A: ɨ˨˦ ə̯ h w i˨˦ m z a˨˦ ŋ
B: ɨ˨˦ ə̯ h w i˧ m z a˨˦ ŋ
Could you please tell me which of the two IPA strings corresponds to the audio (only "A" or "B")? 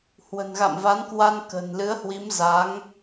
A